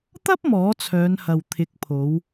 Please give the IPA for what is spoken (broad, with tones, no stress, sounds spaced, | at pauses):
t̪ ɐ˥ p̚ m ɔː˨˥ t͡sʰ œː˨˧ n h ɐ˨ w t̪ʰ ɪ˨˥ k̚ pʰ o˨˧ w